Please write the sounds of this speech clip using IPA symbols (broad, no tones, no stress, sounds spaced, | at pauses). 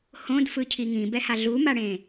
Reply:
h õ d f ɯ cʰ i ŋ ĩ b ɛ h a ɮ u m a ɽ ẽ